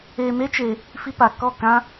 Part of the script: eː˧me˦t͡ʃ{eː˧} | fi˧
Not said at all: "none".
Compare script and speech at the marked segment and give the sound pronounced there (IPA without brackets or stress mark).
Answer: eː˧